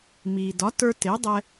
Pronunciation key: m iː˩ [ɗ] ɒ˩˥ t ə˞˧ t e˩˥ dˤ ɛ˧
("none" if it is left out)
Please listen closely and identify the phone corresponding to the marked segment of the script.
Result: d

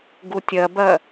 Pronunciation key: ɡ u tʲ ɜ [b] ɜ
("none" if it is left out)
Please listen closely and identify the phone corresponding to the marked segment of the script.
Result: b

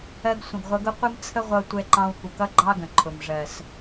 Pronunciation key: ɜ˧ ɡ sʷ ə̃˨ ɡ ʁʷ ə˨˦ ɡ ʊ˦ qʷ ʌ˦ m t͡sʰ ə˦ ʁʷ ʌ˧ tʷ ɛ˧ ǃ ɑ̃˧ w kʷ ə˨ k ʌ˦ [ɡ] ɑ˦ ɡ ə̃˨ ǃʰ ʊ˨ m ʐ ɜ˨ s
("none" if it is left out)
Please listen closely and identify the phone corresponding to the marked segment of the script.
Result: ɡ͡ǃ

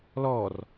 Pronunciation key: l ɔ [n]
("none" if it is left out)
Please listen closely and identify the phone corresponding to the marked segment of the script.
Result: r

